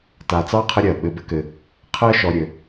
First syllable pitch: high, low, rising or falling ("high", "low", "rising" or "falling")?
low